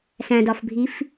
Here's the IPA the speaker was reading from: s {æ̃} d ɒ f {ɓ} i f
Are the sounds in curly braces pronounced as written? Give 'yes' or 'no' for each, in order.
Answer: yes, no

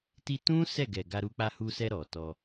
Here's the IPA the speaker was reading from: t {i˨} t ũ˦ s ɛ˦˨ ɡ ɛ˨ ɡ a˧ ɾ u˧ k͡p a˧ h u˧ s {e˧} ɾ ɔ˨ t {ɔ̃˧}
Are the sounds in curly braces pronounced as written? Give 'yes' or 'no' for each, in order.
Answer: no, no, no

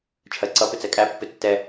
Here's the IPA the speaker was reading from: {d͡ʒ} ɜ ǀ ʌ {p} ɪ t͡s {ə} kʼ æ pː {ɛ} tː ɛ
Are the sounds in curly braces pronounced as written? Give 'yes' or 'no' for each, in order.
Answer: no, yes, no, no

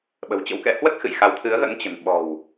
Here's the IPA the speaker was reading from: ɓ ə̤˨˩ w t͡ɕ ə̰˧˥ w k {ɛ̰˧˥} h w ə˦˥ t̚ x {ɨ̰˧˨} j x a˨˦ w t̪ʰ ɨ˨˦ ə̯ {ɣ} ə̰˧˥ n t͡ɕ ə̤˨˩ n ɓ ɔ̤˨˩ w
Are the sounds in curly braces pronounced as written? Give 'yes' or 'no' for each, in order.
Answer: yes, yes, yes

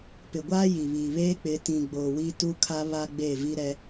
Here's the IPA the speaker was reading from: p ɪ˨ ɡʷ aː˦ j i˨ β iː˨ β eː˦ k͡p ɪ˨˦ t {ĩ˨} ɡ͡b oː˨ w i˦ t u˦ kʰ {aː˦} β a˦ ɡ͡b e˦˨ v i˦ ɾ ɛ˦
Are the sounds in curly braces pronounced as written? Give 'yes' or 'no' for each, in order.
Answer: yes, no

